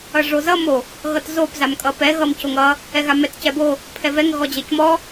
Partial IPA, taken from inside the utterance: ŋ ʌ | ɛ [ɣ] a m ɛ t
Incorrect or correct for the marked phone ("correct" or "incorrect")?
correct